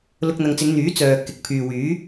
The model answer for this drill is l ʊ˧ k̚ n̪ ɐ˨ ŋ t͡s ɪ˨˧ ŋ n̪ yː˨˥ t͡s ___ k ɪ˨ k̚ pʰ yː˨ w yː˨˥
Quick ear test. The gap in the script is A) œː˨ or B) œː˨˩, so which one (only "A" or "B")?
A